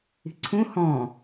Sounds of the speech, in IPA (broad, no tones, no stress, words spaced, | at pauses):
i̤ǀʰũ hɔ̃